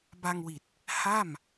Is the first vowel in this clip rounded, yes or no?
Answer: no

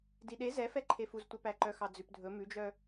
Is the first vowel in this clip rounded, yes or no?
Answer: no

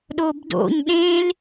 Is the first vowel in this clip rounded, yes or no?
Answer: yes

